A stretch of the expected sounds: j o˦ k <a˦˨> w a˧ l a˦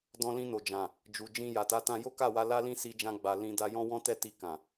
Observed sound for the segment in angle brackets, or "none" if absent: a˦˨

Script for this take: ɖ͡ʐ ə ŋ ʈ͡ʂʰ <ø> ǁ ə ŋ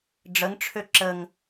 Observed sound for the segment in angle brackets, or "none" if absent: ø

